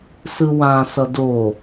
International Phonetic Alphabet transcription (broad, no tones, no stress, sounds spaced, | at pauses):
s ɯ w ã s ʌ d o